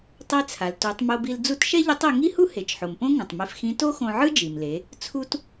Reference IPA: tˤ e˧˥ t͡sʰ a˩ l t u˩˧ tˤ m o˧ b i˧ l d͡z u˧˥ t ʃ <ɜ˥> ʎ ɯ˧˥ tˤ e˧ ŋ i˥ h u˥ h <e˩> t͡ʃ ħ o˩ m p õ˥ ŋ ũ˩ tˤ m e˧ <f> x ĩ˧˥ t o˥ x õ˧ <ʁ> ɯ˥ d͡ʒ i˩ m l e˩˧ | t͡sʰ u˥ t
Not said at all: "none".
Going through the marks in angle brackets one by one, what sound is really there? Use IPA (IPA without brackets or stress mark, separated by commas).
ɛ˥, e˩, f, ʕ